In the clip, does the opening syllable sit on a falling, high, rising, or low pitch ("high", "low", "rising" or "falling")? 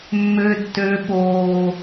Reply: high